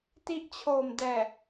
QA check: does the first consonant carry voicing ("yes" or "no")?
no